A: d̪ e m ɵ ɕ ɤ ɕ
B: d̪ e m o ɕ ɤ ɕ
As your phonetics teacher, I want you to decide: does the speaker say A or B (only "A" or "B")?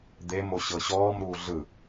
B